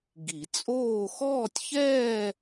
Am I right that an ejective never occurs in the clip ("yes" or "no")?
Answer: no